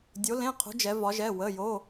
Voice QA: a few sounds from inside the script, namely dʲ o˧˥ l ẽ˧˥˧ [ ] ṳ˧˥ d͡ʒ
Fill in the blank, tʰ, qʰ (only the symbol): qʰ